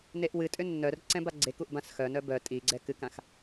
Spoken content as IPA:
neʔwɨtʼʏ nːœr ǀɛ̃baɡ͡ǀekuʔ bãsxœnœ bœ tʼiɡ͡ǀɛ kɨkãx

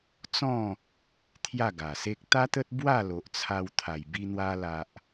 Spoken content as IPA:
t͡sɔ̃˥˧ | t̪ʰja˥˧ɡa˨˩se˦k̚ t̪a˦t̪ə˦t̚ bwa˥˧ lo˨ʔt͡sʰa˧wt̪ʰa˨˩j bi˧n̪wa˧ la˨ʔ

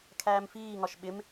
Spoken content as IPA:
kʰæːmfiːŋɒʃ ɓɪm

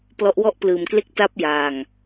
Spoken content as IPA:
plɔ˦˥ʔwɔ˥˩ʔplɯː˧mkle˥˩k̚ ta˦˥p̚ jaː˧ŋ

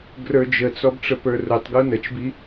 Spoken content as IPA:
ɡrə˞d͡ʒət͡sɔb ʈ͡ʂəpə˞rʊtˤɡu nət͡ʃbi

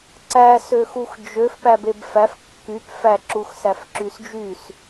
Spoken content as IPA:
ǀæ søxuxd͡ʒøf pæbebfæf kːyp fæ ǁuxsæfǁysd͡ʒys

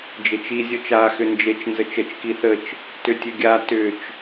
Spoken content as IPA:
d͡ʒet͡ʃi zʲɔt͡ʃa xʏnd͡ʒet͡ʃ nzət͡ʃət͡ʃ kiθət͡ʃ | tʏtʲɘɡʲa tʏt͡ʃ

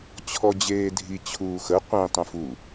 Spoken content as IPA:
t͡ɕʰɔd͡ʑeːdʱi t͡ɕʰuːxə qʷĩ tˤũfu

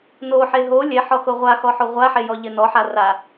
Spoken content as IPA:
noħe ɦo lʲɛħɔxo ʁʷaxɔħo ʁʷaħejɔʎɪ nɔħa ra

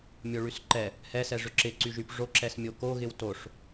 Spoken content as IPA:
mʲoɭysǃɛ | hɛsɛʐʏ ǁɪǀyʒyp ʐoǁɛs mʲokoɣɪw toʂ

